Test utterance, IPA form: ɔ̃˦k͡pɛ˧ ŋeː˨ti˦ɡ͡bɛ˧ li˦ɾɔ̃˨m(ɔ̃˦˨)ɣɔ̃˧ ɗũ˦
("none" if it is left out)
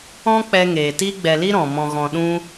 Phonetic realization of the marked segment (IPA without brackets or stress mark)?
ɔ̃˧